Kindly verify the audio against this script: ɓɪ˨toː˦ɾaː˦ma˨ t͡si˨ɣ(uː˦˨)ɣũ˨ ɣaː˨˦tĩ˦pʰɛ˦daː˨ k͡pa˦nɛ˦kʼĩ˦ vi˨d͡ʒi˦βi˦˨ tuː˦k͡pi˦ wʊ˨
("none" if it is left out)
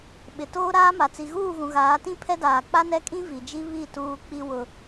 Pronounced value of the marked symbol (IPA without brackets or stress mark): uː˦˨